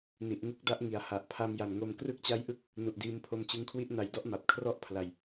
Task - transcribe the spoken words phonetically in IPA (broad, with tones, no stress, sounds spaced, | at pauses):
n i˨˩ ʔ ŋ u˦˥ k̚ d a˦˥ ʔ ŋ i˨˩ a̯ h a˨˩ ʔ pʰ a˧ m j a˨˩ n ŋ o˧ m k r ɯ˦˥ k̚ t͡ɕ a˦˥ j ʔ ɯ˦˥ k̚ | n u˨˩ ʔ d iː˧ m pʰ o˧ m t͡ɕ ɯ˧ ŋ kʰ w i˦˥ ʔ n a˩˦ j d ɔ˦˥ ʔ m a˨˩ p̚ kʰ r ɔ˥˩ ʔ pʰ l a˨˩ j